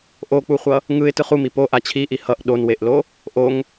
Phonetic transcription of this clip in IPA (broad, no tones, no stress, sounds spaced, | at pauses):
ʔ o k͡p u χʷ ʌ | ŋ ɯ ɪ̯ t ɯ χ u m i p o ʔ a t͡ɕʰ i ʔ i h ʌ ʔ ɗ o n w e ʔ l o | ʔ o ŋ